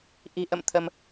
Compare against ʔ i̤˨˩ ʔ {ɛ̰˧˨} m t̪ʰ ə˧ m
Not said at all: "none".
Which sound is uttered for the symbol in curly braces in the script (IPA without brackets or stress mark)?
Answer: ə̰˧˨